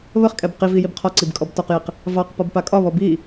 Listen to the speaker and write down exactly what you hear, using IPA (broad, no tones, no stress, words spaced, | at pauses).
βəχkʼɛb qivi jibqʰɒǀib kʼɔbtɒqjiq | vɑqpɒb pakʼɒβɔ bi